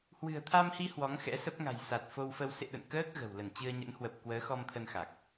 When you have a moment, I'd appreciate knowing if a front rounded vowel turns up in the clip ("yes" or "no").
no